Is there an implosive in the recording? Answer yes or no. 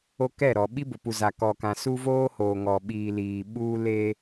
yes